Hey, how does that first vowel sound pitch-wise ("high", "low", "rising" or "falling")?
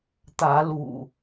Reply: rising